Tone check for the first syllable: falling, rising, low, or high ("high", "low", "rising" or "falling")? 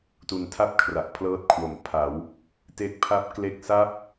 low